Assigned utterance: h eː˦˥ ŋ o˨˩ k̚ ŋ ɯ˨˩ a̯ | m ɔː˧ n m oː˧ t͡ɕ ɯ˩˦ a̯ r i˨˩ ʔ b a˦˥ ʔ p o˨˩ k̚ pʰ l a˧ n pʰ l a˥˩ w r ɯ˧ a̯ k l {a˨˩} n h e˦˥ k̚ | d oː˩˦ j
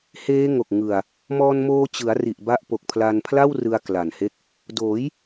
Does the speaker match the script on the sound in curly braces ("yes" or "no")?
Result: yes